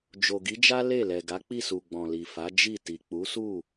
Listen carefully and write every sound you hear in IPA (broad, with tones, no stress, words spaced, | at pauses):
d͡ʒo˨ɡi˨˦d͡ʒa˦ le˦˨lɛ˨ ɡa˨˦k͡pi˦˨su˨ ɡ͡bɔ̃˨li˨fa˨˦ d͡ʒi˦˨ ti˨ k͡pu˨˦su˦˨